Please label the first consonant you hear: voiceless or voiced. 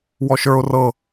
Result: voiced